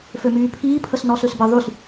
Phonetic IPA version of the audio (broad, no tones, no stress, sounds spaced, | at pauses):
f ø m yː pʰ iː pʰ ə s n ɔ s ø s b ə ðˤ y s